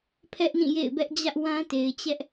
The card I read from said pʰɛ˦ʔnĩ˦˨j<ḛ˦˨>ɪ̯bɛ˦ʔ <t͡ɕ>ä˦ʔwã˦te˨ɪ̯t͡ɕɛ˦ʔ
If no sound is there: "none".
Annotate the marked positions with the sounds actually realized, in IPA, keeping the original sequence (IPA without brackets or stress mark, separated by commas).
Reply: ḛ˦˨, d͡ʑ